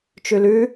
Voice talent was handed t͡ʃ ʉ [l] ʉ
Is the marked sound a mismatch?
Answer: no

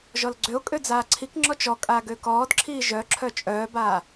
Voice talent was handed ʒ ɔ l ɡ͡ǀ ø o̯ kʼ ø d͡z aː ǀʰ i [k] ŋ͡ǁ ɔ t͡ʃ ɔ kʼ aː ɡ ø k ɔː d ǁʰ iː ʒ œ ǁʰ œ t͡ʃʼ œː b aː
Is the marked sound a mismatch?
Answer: no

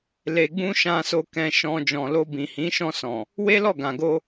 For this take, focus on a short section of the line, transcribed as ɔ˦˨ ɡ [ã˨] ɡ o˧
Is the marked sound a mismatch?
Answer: no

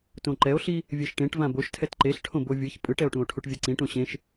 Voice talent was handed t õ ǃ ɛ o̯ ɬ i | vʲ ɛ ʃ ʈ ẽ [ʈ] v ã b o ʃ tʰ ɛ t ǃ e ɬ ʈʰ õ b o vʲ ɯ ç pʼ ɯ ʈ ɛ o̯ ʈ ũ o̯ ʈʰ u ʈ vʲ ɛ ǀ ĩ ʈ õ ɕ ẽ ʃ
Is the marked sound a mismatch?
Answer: no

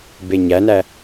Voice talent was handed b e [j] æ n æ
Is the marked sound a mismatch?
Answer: yes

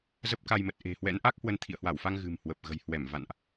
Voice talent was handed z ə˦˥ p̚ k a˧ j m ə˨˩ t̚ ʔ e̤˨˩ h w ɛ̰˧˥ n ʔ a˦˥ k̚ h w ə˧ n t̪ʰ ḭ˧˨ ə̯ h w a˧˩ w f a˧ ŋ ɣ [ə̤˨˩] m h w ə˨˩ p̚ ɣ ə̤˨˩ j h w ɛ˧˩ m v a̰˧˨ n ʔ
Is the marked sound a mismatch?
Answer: yes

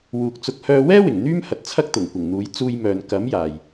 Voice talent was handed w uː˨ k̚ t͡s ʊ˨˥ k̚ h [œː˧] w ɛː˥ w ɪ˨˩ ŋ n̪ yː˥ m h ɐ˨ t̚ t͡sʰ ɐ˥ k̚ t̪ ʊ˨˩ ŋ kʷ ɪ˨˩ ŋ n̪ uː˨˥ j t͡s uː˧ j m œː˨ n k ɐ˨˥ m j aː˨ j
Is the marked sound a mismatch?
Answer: no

